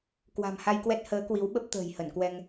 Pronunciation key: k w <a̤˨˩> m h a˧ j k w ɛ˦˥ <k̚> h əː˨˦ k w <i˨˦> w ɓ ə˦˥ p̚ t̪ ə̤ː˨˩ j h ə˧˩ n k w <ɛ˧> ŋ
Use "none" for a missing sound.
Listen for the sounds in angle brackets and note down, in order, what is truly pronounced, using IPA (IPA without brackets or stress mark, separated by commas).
a̤˨˩, t̚, i˨˦, ɛ˧